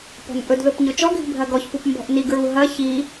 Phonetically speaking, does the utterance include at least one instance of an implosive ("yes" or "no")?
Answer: no